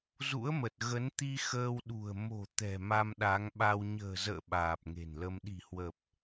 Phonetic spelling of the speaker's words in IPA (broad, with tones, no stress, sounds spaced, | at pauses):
z ṵ˧˥ ə̯ m ə˨˩ t̚ ɣ ə˨˦ n t̪ i˧ x əː˧ w ɗ ṳ˨˩ ə̯ m o̤˨˩ t̪ ɛ̤˨˩ m a˧ m ɗ a˨˦ ŋ ɓ a˧ w ɲ ə̤ː˨˩ z ə̰ː˧˨ ɓ aː˨˩ p̚ ŋ e̤˨˩ n l ə˧ m ɗ i̤˨˩ h w ə˨˩ p̚